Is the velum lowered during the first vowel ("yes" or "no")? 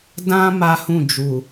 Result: yes